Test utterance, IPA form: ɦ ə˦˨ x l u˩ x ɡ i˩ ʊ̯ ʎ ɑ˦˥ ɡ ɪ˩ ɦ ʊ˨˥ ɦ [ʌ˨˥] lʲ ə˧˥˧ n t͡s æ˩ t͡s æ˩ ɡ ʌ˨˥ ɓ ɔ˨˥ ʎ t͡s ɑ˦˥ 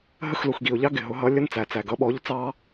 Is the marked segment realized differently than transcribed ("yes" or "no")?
no